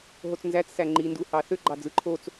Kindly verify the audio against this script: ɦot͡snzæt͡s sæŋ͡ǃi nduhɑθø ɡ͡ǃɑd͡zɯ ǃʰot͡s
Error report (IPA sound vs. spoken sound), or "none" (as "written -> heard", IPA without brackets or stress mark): none